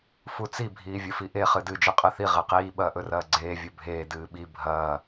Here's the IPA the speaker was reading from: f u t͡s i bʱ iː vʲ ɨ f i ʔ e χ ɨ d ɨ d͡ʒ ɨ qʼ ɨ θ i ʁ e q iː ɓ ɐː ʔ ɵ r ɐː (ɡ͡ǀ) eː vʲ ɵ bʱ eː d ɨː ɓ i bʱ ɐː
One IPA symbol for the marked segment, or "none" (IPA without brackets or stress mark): ɡ͡ǀ